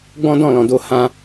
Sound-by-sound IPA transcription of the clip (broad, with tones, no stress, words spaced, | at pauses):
ɡ͡bɔ̃˦dɔ̃˦˨lɔ̃˨ do˧hã˧